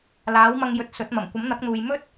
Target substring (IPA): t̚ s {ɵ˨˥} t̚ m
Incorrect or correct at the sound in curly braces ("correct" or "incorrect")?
correct